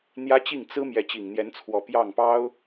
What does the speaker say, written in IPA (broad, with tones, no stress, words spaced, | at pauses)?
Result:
n̪jä˥t͡ɕi˥˩ŋ t͡sɹ̩˥ mjɛ˧˥t͡ɕi˨˩ŋn̪jɛ˧˥nt͡sʰwɔ˨˩ pjɑ˥˩ŋpɑ˥ʊ̯